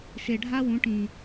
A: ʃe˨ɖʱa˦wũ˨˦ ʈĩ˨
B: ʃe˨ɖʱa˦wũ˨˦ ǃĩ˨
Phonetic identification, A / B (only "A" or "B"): A